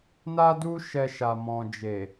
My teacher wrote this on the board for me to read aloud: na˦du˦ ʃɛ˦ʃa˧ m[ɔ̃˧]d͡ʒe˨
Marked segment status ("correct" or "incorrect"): incorrect